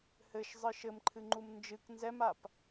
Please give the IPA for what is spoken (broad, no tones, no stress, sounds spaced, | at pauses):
h ɘ ʃ zˤ ɨ ʃ ɘ m ǃʰ ɨ ŋ͡ǃ u m n d͡ʒ ɨ k n z ɛ m a p